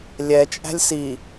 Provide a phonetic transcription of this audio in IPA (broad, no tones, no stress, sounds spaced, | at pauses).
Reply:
lʲ ɛ t͡ʃʼ æ̤ lʲ s i